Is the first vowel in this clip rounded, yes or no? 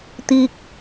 no